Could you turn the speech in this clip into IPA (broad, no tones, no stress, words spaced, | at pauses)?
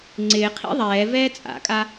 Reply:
ŋ͡ǀɪːqʰḭ ðˤɛː vɛːt͡sʼa̰kʼa